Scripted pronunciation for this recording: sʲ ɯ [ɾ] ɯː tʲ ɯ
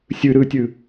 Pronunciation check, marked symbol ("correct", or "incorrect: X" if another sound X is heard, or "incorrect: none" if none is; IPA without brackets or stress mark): correct